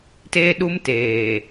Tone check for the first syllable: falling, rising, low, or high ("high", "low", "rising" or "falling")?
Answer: high